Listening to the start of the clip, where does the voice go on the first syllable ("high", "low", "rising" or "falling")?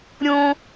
high